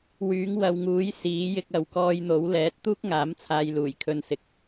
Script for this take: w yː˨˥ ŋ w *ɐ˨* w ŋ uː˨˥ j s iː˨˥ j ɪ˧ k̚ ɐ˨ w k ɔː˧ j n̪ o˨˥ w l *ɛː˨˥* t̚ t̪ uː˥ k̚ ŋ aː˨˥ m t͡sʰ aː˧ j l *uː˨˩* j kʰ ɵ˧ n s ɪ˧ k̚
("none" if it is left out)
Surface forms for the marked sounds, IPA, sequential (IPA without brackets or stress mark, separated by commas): ɐ˨, ɛː˨˥, uː˨˩